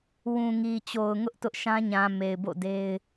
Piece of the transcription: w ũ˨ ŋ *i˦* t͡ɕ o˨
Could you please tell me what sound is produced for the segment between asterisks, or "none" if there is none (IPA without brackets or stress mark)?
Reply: i˨